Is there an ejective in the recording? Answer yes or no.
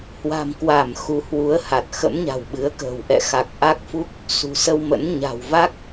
no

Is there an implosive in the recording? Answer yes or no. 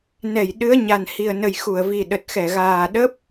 yes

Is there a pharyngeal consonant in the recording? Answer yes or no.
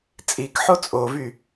yes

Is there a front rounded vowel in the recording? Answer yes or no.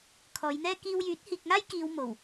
yes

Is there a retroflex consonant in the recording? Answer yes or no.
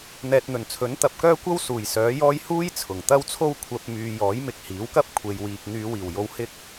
no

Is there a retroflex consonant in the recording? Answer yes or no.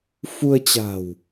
no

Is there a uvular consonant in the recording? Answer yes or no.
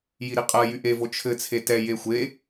yes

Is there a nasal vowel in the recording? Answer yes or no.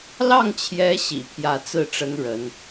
no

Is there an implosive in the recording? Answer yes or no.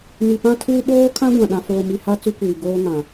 yes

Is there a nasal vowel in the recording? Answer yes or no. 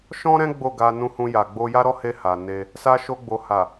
yes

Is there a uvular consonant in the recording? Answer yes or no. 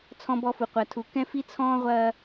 yes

